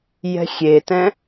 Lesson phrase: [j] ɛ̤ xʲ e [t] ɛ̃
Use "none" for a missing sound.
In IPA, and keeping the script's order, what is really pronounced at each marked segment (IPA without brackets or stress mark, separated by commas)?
j, t